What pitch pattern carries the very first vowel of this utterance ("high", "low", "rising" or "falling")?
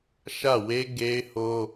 falling